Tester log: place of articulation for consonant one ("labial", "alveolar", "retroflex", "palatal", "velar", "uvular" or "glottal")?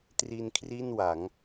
alveolar